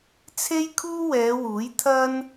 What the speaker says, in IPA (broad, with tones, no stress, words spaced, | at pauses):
t͡sʰe˥jkʰuː˥wɛː˨˧wuː˨˥j t̪ʰɐ˥n